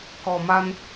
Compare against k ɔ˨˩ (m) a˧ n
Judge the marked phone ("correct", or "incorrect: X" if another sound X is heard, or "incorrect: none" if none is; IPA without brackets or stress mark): correct